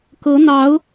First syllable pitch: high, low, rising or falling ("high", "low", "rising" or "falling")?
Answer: rising